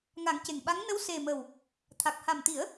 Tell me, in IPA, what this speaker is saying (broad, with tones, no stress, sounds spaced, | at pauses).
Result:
ŋ a˨˩˦ ŋ c e˨˩ ŋ ɓ a˧˥ ŋ n ə˧˥ w s e˨˩ m ə˨˩ w | t̪ʰ a˨˩ k̚ h a˨˩ m t̪ i˨˩˦ ə̯